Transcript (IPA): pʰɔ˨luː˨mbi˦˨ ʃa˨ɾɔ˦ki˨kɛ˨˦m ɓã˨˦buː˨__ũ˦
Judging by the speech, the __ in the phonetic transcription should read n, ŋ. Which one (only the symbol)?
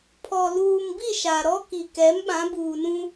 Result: n